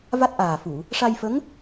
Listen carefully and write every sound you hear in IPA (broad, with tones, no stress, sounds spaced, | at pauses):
v a˦˥ t̚ ʔ aː˨˩ f u˨˩˨ | ʂ a˧ j f ə˧˥ ŋ